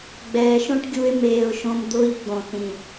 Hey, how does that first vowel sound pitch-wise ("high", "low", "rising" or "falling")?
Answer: low